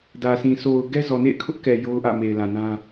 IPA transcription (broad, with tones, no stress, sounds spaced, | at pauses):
d ä˨ sʰ ĩ˨ s o˨ ʊ̯ ɡ ɛ˦ z ɔ˨ n ḛ˦˨ ɪ̯ kʰ ʊ˦ ʔ k ɛ˨ j o˦ ʊ̯ ʔ ä̰˦˨ m e˨ ɪ̯ l ã˨ n ã˦